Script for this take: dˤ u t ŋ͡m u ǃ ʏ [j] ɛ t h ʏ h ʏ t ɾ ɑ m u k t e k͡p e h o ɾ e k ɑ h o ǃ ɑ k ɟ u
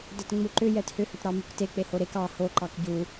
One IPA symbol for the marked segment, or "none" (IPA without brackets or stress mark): j